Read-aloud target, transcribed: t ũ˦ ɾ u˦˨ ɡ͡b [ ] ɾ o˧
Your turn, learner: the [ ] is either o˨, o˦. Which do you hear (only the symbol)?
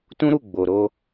o˨